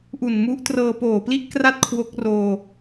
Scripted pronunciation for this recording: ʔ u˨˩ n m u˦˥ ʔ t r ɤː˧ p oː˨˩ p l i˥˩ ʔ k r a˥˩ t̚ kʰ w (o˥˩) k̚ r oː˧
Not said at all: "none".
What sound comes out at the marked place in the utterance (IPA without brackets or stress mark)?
o˦˥